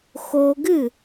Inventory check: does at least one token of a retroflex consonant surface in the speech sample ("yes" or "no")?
no